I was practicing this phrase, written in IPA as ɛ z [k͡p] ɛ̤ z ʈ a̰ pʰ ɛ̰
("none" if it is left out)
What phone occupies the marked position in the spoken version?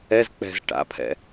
k͡p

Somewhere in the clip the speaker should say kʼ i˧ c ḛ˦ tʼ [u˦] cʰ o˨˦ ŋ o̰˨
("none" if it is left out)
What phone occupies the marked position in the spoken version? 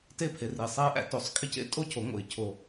o˦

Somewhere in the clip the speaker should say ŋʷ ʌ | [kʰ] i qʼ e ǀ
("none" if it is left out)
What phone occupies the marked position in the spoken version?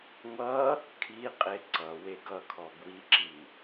kʰ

